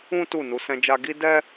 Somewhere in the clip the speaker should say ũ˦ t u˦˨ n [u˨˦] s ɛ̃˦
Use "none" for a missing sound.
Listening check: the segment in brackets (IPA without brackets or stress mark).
u˨˦